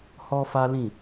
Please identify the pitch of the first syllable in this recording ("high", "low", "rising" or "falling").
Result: high